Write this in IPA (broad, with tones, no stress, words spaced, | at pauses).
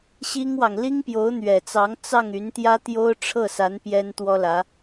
ɕi˥ŋwɑ˨ŋ li˥ŋpjo˧˥ʊ̯n̪ɥɛ˨˩t͡sɑ˧˥ŋ t͡sɑ˥˩ŋy˧˥nt̪jä˥t̪jo˥ʊ̯ ʈ͡ʂʰɤ˥˩sa˧˥n pjɛ˥nt̪wɔ˥lä˧˥